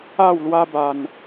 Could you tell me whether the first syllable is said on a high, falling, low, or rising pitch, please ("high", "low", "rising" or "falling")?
falling